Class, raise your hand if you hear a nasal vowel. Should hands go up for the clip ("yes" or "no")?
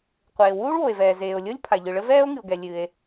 no